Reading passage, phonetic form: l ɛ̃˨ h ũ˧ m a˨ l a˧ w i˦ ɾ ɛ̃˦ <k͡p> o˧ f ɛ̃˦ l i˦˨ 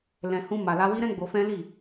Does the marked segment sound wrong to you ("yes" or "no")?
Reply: yes